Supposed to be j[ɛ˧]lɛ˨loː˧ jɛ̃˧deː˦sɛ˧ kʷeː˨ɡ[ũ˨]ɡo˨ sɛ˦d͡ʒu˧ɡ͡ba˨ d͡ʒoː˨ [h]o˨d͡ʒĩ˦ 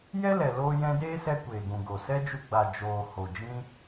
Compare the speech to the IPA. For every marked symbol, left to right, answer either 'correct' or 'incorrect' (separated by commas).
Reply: incorrect, correct, correct